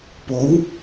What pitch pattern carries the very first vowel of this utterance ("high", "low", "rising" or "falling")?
rising